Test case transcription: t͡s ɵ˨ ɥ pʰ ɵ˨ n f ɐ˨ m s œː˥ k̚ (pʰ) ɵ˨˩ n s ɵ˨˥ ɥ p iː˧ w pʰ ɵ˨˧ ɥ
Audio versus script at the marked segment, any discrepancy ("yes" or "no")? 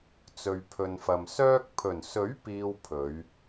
no